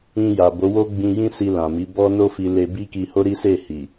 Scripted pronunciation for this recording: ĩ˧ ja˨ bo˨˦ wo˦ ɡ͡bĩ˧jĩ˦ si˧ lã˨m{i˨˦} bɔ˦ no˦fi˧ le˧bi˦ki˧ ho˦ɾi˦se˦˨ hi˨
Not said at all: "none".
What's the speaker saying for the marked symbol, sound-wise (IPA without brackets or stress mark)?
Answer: i˨˦